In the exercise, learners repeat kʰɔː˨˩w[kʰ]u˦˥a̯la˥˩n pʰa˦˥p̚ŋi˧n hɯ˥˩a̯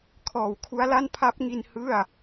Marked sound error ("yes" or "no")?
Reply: no